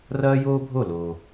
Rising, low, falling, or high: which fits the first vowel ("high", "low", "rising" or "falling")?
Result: high